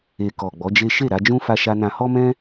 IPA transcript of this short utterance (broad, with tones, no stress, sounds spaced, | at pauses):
e˨ k ɔ˨ ɡ͡b ɔ˨˦ d͡ʒ e˦ ʃ e˦˨ ɾ a˧ d͡ʒ ũ˦ f a˦ ʃ a˦ n ã˦ h ɔ˦ m ɛ̃˦